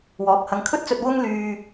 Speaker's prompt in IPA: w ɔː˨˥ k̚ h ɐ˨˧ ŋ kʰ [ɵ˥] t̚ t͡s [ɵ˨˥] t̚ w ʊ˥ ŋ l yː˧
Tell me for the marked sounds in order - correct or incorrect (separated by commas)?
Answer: correct, incorrect